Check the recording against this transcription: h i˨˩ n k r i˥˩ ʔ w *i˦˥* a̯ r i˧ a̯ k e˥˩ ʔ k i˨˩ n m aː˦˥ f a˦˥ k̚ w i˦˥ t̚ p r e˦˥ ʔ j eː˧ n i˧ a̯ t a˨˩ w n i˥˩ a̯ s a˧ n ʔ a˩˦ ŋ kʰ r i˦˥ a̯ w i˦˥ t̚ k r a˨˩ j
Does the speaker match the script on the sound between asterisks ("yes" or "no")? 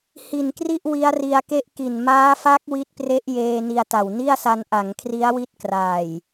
yes